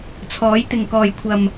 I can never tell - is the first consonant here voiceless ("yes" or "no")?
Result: yes